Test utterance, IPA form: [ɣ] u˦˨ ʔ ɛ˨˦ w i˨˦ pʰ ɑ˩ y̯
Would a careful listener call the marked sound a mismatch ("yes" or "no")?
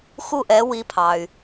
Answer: yes